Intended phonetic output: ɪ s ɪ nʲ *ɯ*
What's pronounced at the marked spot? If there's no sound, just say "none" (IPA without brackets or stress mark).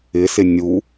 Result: u